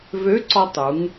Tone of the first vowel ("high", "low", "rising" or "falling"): rising